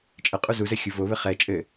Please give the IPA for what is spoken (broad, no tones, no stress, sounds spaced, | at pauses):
t͡ʃʼ ə qʼ u z u z ɘ xʲ u v o β ɘ χ ɛ t͡ʃʼ ɘ